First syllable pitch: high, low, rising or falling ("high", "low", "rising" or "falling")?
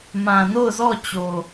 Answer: low